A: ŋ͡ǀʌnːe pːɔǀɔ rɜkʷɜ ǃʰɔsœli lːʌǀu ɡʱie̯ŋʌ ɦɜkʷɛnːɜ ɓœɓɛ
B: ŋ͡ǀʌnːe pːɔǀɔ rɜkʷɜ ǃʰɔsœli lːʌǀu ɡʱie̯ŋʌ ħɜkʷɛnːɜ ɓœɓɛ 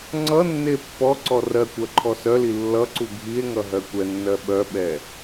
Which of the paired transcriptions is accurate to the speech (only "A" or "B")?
A